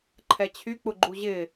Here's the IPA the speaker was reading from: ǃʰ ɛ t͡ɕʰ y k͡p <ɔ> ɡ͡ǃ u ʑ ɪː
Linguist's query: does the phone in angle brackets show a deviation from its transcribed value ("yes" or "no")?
yes